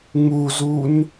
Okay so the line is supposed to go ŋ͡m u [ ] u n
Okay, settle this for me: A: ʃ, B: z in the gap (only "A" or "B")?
B